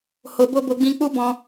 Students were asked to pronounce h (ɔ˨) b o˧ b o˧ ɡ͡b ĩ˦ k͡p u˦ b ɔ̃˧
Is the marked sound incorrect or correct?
incorrect